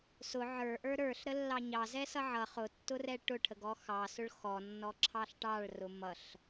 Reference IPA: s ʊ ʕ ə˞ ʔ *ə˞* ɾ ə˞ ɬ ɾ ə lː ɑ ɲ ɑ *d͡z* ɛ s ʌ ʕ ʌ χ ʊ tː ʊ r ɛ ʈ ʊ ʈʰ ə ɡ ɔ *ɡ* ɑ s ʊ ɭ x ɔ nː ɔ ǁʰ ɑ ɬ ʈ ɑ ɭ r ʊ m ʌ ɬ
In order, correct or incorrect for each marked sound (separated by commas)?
correct, incorrect, incorrect